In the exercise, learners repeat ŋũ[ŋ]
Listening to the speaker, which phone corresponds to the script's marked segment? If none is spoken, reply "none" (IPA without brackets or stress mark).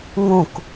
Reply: k